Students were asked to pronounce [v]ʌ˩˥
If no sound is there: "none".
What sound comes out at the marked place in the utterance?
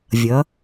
vʲ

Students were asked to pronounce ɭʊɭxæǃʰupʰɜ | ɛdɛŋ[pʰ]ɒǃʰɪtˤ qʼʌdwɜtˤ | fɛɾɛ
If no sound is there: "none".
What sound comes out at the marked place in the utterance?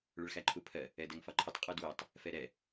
f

